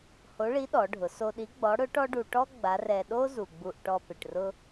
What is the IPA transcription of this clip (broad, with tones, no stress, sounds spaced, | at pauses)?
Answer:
h o˧˥ ɭ i˧˥ ɗ ɔ˩˧ ɖʱ ʊ˩˧ s o˧ ɗ i˧˥ ɡ͡b ɔ˧˥ ɽ ʊ˧˥ ʈ ɔ˥ ɖ u˧ ʈ ɔ˥ ɡ͡b a˧˥ r ɛ˧ ɗ o˥ z u˩ ɡ͡b u˧ ʔ ʈ ɔ˧ p ɪ˩ ʈ r ʊ˧